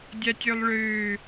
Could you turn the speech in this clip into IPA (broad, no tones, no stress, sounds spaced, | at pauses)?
dʲ a tʲ ø lˠ ɭ øː